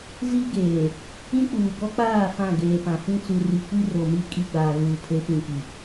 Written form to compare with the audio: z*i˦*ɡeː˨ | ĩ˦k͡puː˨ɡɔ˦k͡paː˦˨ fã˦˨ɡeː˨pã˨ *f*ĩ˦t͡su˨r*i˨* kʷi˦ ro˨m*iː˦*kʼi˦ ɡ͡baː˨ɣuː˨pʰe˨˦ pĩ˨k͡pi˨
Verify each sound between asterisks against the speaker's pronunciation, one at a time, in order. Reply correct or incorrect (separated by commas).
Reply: correct, correct, correct, incorrect